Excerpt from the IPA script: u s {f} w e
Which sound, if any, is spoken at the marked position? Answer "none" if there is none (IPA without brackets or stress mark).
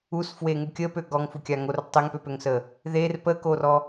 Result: f